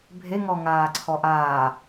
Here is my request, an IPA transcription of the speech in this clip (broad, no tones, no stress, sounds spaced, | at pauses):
bʱ e ŋ ɔ ŋ aː ǀʰ ɔ ʔ aː